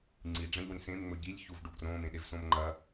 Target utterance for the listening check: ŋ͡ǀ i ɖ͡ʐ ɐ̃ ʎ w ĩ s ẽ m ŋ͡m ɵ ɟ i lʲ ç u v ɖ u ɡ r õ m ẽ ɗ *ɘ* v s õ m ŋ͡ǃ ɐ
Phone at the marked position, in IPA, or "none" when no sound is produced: e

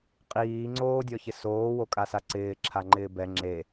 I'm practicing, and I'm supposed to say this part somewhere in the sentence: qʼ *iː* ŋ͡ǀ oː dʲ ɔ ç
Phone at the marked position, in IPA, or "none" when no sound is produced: iː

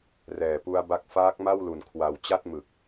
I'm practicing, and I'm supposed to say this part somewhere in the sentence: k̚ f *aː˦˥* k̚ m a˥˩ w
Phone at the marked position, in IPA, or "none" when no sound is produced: aː˦˥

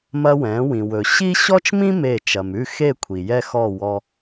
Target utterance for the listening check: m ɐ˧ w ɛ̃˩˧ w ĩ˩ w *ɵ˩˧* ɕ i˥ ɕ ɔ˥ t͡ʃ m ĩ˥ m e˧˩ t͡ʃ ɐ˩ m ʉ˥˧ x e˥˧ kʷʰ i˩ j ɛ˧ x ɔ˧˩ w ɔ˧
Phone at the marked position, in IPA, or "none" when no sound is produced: ɵ˩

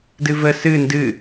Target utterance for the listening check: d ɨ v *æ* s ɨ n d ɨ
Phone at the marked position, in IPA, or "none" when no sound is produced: ə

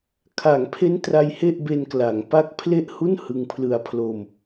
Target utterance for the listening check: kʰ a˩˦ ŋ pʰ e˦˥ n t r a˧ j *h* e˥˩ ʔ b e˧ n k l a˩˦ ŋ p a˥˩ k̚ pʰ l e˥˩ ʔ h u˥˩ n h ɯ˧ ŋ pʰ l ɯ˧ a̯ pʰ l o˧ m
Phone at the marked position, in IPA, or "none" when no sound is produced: h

